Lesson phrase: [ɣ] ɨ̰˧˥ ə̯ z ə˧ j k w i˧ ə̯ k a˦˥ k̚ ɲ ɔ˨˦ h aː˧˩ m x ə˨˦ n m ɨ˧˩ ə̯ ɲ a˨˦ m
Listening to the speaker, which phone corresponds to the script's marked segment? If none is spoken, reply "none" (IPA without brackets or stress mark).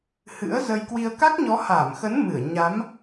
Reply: h